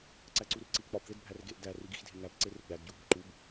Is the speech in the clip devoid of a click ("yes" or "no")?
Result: no